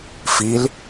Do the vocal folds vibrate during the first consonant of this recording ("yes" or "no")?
no